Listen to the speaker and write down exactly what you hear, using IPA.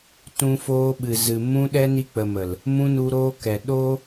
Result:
t ũ˧ f oː˧ ɓ ɨ˨ z ɨ˨ m ũ˧ ɗ ɛ˧ n i˧ k͡p ə˨ m ə˨ l | m ũ˧ n u˧ ɾ oː˧ k ɛ˨ ɗ oː˦

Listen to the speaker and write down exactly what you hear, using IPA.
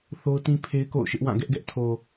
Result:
θ o˦ ʊ̯ t ĩ˦ pʰ e˦ ɪ̯ k o̰˦˨ ʊ̯ ʃ ɪ˦ ʔ w ã˦˨ ɡ ɛ˦ ʔ ɡ ɛ˦ ʔ tʰ o˨

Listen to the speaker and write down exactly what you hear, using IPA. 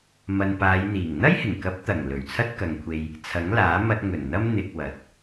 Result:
m ɐ˨ n p aː˨˧ j n̪ iː˨˩ ŋ n̪ ɐ˥ j h ɪ˨˩ ŋ k ɐ˨˥ p̚ t̪ ɐ˨˩ ŋ l ɵ˨˩ ɥ t͡sʰ ɐ˥ t̚ k ɐ˨ ŋ kʷʰ e˧ j | t͡sʰ ɐ˨˥ ŋ l aː˨˥ m ɐ˧ t̚ ŋ ɵ˨˩ n n̪ ɐ˥ m n̪ ɪ˧ k̚ w ɐ˨˥ t̚

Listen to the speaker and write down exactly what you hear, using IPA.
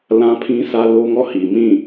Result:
l ã˦ pʰ ĩ˦ sʰ ä˦ l o˦ ŋ ɔ˦˨ h i˨ m ĩ˦˨

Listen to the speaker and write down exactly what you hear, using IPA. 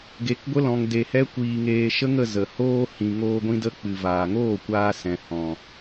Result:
ɡ e˧ k ɡʷ ə˦ l ɔ̃˧ ŋ d e˧ h ɛ˦ kʷ iː˧ ŋ eː˧ ʃ ə˦ ŋ ə˧ z ə˨ h oː˧ h ĩ˨ ŋ oː˧ ɡʷ ĩ˧ d ə˧ k͡p ɨ˨ v aː˨ ŋ oː˦˨ kʷ aː˧ s ɛ̃˨ h ɔ̃˨

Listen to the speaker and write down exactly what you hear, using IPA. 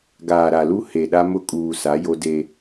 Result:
ɡ aː˨ ɾ a˨ l u˦ h e˨ ɗ a˦ m ʊ˦ kʼ uː˨ s a˨˦ j o˦ d e˦

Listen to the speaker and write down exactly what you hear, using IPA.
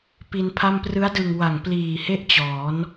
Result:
p i˧ n pʰ a˥˩ m p r ɯ˦˥ a̯ d ɯ˨˩ ŋ w a˨˩ ŋ p l iː˨˩ h e˥˩ ʔ t͡ɕ ɔː˩˦ n

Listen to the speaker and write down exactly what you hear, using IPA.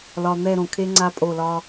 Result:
l ɒ˨ n̪ ɛ˦˨ ɾ õ˨ kʰ e˦ ŋ͡ǀ a˦ pʼ o˦˨ l ɒ˦

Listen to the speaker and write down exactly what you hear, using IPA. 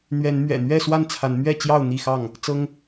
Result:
n̪ ɥ ɛ˨˦ n m ɥ ɛ̰˨˩ n̪ ɥ ɛ˥˨ s w a˥˨ n t͡sʰ a˨˦ n m ɥ ɛ˥˨ t͡ɕ j ɑ˥˨ ʊ̯ n̪ i˥˨ x ɑ˥˨ ŋ | t͡s ɤ˦ ŋ

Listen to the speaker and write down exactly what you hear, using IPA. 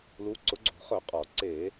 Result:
l u˩˧ ǀ ʊ˩˧ ɡ͡ǀ o̤˧˩˧ χ œ˧˩˧ qʼ ɔ˧˩˧ ǀ e˧˩˧

